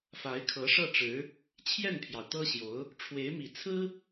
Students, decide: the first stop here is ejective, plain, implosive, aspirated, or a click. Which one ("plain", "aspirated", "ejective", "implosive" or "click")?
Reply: aspirated